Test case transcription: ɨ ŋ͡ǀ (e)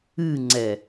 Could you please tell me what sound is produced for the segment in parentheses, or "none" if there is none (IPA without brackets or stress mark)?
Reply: ɛ